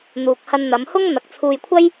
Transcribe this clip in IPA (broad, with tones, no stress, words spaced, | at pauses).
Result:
n̪uː˨k̚hɐ˧nn̪ɐ˨˧mhʊ˥ŋ n̪ɐ˨k̚t͡sʰuː˧jkʷʰɐ˥j